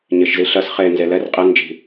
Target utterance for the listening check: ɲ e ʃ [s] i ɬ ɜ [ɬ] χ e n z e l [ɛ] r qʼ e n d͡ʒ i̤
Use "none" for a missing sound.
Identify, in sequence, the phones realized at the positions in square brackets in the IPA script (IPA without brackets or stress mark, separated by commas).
z, s, ɛ